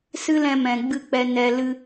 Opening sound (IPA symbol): s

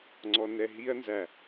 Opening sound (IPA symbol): ŋ͡ǀ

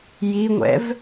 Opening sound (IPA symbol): j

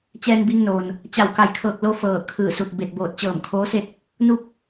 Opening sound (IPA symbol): t͡ɕ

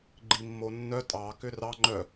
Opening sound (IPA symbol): ɡ͡ǃ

